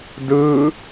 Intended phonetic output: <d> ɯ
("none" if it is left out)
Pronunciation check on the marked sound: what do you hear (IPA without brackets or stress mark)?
d